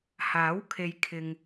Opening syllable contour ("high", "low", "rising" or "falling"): rising